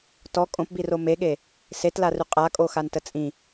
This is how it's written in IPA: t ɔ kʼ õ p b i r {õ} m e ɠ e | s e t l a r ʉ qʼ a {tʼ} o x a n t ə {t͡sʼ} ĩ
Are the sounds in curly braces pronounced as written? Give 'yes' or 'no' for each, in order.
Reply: no, no, yes

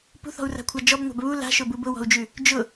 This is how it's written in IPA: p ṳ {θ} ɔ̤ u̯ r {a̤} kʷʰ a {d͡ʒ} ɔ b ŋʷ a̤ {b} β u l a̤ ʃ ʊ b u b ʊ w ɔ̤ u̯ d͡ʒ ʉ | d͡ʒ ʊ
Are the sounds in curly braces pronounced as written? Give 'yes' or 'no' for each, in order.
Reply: yes, yes, yes, yes

